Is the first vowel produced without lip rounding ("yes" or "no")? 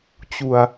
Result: no